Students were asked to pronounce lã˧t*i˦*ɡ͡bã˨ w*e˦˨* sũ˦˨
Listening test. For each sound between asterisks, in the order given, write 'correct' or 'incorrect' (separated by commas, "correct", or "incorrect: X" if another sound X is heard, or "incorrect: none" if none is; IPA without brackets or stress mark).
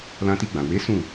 incorrect: i˧, incorrect: e˨˦